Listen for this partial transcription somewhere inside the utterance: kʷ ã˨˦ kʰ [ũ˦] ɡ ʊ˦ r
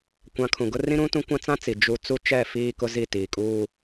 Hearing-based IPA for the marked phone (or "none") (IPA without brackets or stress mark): ũ˨